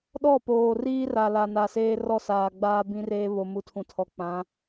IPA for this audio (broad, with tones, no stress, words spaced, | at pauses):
ɗɔ˦˨poː˨riː˦ ra˨la˨ na˨seː˦rɔ˦ saː˨ ɡ͡baː˦bĩ˦reː˦ βo˨mu˨tʰũ˨tʰɔ˨ k͡pã˨˦